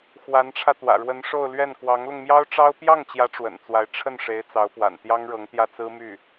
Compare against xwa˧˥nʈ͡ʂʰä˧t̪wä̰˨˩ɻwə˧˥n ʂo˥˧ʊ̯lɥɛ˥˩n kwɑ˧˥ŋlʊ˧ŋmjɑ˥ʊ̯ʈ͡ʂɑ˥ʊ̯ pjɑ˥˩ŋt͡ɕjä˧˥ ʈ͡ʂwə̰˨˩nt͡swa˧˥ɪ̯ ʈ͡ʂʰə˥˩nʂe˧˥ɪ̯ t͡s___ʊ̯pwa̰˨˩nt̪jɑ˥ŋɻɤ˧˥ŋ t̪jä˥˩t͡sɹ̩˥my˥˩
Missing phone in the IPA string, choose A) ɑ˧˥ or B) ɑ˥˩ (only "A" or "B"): A